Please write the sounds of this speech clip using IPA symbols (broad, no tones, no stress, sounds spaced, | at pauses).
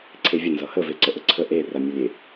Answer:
ǀʰ e vʲ ə n z ʌ h ə v e ǀ ə ʔ ə ǀʰ ə ʔ e r a mʲ ʌ lʲ e